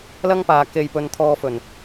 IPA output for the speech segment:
l ɐ˥ ŋ p aː˨ k e˨ j p ɵ˨ n t̪ʰ ɔː˧ f ɵ˨˩ n

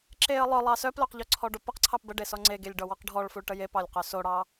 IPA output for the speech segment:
ǁ e ə̯ lˠ œ lˠ ɑ s œ p l œ q ʎ ɔ ǀʰ ɔ ɖ o p ɐ q ǀʰ ɑ p b ə ɖ e s ɔ ŋ͡ǀ e ɡ e lʲ ɖ ɔ w ɔ q ɖʱ ɔ ɭ f u ɭ ʈ ə j e p ɑ lʲ q œ s o ɽ ɑ

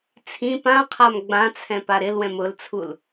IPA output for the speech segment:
t͡sʰ ĩ p ã qʰ a m ɡ͡b ã t͡sʰ ɛ̃ p a ɾ ɪ l w ɛ̃ m ʊ l t͡sʰ u l

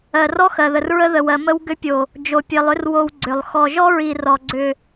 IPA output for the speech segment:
ɜ˨ r ɔ˦ x ɜ˨ ð ə˨ r ɹ ə˦ ð ə˨ w ɜ˨ m ə˦ w ɡ ʏ˦ pʲ o˨ | d͡ʒ o˨ pʲ ɜ˨ lˠ ʏ˦ r w o˦ w ɡ͡ǀ ʏ˨ lˠ x ɔ˨ ʒ ɔ˦ ɹ i˨ r ɔ˨ ɡ͡ǀ ʏ˨

